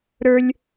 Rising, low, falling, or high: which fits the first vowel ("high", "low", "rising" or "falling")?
high